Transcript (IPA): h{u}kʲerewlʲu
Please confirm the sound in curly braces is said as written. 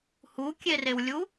yes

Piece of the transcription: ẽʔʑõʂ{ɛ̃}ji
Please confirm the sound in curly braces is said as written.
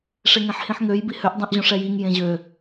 no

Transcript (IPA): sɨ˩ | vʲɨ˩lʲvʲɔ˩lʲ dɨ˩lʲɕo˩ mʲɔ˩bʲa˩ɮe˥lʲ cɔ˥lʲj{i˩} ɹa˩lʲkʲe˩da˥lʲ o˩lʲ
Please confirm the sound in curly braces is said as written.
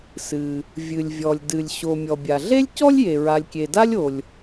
no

